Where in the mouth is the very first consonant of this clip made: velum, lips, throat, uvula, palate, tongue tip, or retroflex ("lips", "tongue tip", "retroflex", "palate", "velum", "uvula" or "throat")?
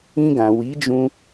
velum